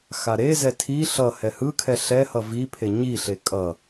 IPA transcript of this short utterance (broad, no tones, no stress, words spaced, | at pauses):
xaɾezɛ tʰi ɬʌ hɛhɯkʰɛ ɬɛhʌ vipʰe ɲiɬe kʼʌ